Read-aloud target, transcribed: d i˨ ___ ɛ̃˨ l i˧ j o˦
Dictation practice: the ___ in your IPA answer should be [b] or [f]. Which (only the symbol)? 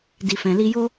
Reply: f